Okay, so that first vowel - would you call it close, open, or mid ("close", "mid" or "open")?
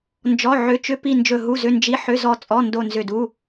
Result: mid